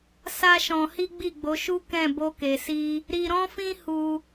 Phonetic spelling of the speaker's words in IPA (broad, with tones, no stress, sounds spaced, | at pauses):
s a˦ ʃ ɔ̃˧ h i˦ ɡ͡b i˦˨ ɡ͡b o˨˦ ʃ u˦ k ɛ̃˦˨ b o˧ k e˨ s i˧ | ɾ i˧ ɾ ɔ̃˦ f ĩ˦ h u˧